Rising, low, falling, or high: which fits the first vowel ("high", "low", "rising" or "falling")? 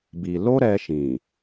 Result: low